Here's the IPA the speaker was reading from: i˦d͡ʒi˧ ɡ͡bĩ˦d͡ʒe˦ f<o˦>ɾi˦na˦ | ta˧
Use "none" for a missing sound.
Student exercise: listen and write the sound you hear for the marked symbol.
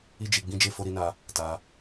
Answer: o˦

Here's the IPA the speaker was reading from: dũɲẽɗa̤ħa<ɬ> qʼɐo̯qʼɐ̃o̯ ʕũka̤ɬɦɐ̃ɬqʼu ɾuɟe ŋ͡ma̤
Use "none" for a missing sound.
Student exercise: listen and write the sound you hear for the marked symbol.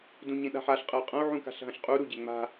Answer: ɬ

